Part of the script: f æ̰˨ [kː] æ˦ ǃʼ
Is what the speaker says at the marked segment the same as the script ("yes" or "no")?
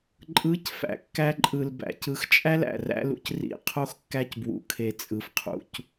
yes